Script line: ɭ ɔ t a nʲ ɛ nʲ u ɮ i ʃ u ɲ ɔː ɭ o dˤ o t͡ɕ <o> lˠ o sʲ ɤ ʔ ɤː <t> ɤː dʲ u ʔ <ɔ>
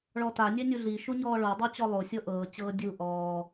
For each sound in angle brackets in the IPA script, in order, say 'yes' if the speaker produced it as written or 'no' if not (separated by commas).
no, no, no